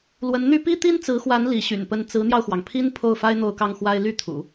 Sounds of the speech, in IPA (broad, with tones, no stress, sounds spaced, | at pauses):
l w ə˧˥ n n̪ y˥ p i˥ t̪ i˥ n t͡s ɹ̩˧˥ x w a˧˥ n l i˧˥ ɕ y̰˨˩ n p ə˥˩ n t͡s ɹ̩˧˥ n̪ j ɑ˧ ʊ̯ x w ɑ˩ ŋ pʰ i˥ n pʰ o˥˩ ʊ̯ f a˥ ɪ̯ n̪ o˥˧ ʊ̯ k ɑ˥˩ ŋ x w a˥ ɪ̯ l y˥˩ t̪ʰ ṵ˨˩˦